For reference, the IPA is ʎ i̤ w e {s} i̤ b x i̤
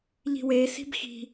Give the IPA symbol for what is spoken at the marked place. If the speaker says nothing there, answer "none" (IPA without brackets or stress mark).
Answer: s